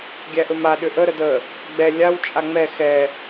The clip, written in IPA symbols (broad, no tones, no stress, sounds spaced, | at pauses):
ɡʲ æ ʔ ɵ m a ɗ ʏ ʔ ə ɾ ə d ə | ɡ͡b ɛ lʲ a w t͡ʃʼ a ŋ͡m ɛ x ɛ